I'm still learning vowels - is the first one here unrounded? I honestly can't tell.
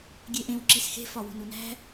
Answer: yes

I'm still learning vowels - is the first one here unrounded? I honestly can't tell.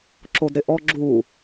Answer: no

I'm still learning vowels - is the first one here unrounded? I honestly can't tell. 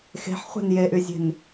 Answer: yes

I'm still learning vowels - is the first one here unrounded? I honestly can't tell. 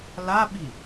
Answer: yes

